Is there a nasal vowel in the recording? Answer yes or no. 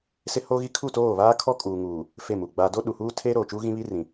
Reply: yes